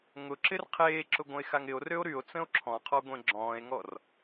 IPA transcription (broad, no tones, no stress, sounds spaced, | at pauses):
ŋ ʊ ǁ ɪ r qʰ eː ǁ ʊ ɡʷ ə̃ e̯ x a ŋ ɪ o̯ r ø o̯ ɾ y o̯ t͡s ə̃ o̯ ǁʰ ɔ̃ qʰ ɔ ɡʷ ẽ ɡ͡ǁ ɔ̃ː e̯ ŋ ɔ r